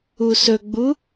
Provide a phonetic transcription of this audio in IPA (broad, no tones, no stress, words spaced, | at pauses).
usɵɡ͡bu